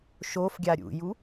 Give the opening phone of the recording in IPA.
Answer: ʃ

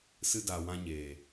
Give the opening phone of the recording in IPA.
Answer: s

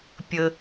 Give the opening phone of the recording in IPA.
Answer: pʲ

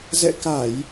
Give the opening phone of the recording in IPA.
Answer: z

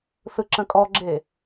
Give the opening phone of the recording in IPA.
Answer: θ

